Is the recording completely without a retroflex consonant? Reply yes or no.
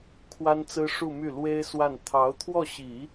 no